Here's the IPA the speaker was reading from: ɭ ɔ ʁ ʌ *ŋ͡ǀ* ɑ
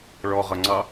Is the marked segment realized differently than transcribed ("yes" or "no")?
no